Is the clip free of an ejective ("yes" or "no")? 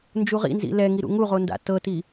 yes